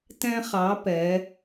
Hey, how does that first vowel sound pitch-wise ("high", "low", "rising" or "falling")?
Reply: high